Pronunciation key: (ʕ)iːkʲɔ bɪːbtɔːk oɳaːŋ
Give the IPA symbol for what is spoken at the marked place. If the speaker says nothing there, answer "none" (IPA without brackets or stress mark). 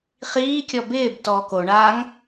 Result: χ